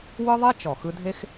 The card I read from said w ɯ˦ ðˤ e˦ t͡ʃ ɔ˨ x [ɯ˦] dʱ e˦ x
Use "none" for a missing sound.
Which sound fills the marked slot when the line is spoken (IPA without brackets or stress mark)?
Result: ɯ˦